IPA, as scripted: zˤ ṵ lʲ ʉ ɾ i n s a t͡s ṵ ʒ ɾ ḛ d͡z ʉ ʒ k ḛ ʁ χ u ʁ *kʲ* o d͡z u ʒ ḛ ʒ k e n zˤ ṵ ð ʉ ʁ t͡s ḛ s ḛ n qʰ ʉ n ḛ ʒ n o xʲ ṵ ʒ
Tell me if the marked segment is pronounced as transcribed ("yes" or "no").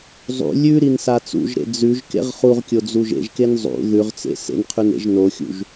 yes